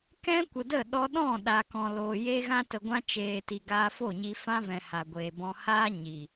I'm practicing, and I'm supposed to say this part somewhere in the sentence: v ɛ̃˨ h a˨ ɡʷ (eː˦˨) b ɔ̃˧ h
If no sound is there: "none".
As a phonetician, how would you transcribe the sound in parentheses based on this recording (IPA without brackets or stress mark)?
eː˨